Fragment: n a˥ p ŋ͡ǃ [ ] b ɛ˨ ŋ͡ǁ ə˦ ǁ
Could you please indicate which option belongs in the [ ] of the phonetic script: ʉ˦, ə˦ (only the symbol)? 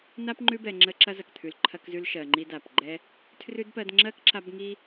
ʉ˦